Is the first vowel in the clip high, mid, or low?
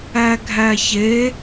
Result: low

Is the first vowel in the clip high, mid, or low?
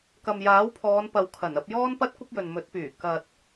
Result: low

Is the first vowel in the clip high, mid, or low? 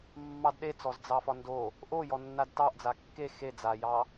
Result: low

